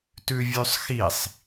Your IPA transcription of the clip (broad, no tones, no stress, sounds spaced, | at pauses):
t ʉ vʲ ʉ sˤ x i sˤ